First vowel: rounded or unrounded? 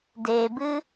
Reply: unrounded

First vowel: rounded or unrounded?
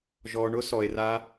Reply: rounded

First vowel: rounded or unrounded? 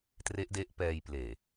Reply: unrounded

